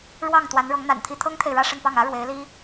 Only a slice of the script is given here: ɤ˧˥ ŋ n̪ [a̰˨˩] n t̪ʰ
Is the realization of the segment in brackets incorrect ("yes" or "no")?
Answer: no